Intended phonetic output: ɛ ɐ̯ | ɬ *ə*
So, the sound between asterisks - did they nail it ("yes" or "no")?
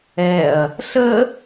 yes